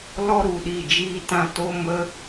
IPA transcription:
l ɔ˦ ɾ u˨ ɗ i˦˨ d͡ʒ iː˦ t ã˦ t o˦ m ə˦

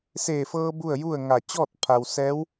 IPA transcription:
s eː˧˩ f ɤː˧ b u˥˨ ə̯ j u˥˨ ə̯ ŋ a˧˩ t͡ɕ ɔː˥˨ t̚ pʰ a˩ w s ɛː˧˥ w

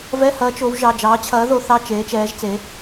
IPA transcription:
v ɛ˧˥˧ h ɐː˨˦ t͡ʃ o˨˦ w ʒ ɑ˩˧˩ d͡ʒ ɑː˨˦ t͡ɕʰ ɐː˨˦ ð o˨˦ θ ɑ˧˥˧ t͡ʃ eː˨˦ t͡ʃ ɛː˨˦ ʒ t͡s e˨˦

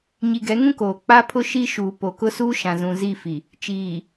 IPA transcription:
ɲ i˨ ɡ ɛ˨˦ ŋ ũ˦ k oː˨ k͡p a˦ pʰ ʊ˦ ʃ i˦ ʃ uː˨ p o˨ k ʊ˦ s uː˦ ʃ ã˨ z ũ˨ z i˦˨ f i˨ | t͡ʃ iː˨

